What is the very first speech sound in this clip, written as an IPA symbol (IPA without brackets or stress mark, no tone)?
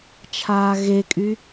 t͡ʃʰ